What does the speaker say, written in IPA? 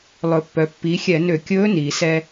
lˠ ɵ˩ pː œ˩ pː i˩˧ xʲ ɛ˧˩˧ n ø˧˩˧ kʲ ɵː˧˥ n iː˩ s ɛ˧

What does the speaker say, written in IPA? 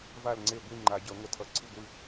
v a˦˨ l ŋ͡ǀ e˦˨ ɡʷ i˦˨ ŋ͡ǃ a˨˩˦ ɟ ʌ˨˩˦ ŋʷ ʌ˨˩˦ tʰ ʌ˨˩˦ ǀʰ ɯ˦˨ ɡʷ ɯ˦˨

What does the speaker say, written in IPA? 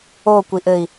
o kʷ i ʔ ɘ i̯

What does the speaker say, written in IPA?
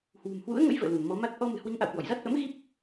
h w ṳ˨˩ m h w ṵ˧˥ ə̯ ŋ ə̰˧˥ j v ə̰ː˧˨ l u˧˩ n m ɔ˨˦ m a˦˥ t̚ ʔ ɔ˧ m ɨ̤˨˩ h w i˨˦ ŋ ʔ a̰˧˨ w k w ɔ̰˧˨ j z a˦˥ t̚ ʔ ə̰˧˥ m ɣ i˦˥ p̚

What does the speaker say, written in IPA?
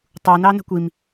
tˤ u n ɑ n ə̤ kʷ i m

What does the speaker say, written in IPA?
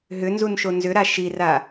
ɦ ʏ n z u n ʃ o n z ʏ ɾ a ʃ i r a

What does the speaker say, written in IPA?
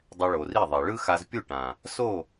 dˤ ɛ˧ ɭ o˨ r i˦˨ ðˤ ɛ˨ ɭ ɯ˦ x a˧ z pʲ u˦˨ ʈ ã˨ | s o˦˨

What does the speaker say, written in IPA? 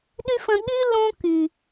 ɗ y˦ f ə̃˧ ɠ y˦ l õ˦ k y˨

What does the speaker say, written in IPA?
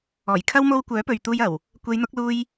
ɔː˨˩ j kʰ ɐ˥ w m o˥ w kʷ œː˨˥ p ɵ˨ ɥ t̪ uː˧ j ɐ˨˩ w | kʷ e˨˧ j n̪ ʊ˨˥ k̚ l uː˧ j

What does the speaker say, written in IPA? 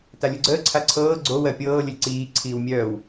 t a lʲ u ɡ͡ǀ əː ǀʰ a ǀʰ ɤː ɡ͡ǀ o w ɜ pʲ ɤː lʲ ə lʲ ǀ iː ǀʰ iː w mʲ œː w

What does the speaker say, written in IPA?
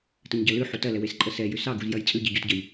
t ə ɲ ɟ ɐ l ʉ ħ u t ɐ l ɛ w e s ǃʼ ə s ɛ j ʉ s ɑ ɡ u z j ɐ j t͡sʼ ʉ ɟ i ɟ u t ɟ ə j

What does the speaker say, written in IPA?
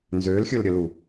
n z ø l xʲ ɵ l ɾʲ ə l u

